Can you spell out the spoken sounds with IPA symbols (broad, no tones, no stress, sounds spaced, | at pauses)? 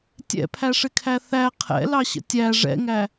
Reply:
tʲ ɛ̰ pʰ æ ʂ ɪ kʰ æ θ æ qʰ ɛ̰ l ɑ ɕ ə̰ tʲ æ ʐ ɛ̰ ŋ æ